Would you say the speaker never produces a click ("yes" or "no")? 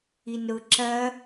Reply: no